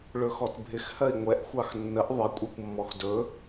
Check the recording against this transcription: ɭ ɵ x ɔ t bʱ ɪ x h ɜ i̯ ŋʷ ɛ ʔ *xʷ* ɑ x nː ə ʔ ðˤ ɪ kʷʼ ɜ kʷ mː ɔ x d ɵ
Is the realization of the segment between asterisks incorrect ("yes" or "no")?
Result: no